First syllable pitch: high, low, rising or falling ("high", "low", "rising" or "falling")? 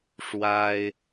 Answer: high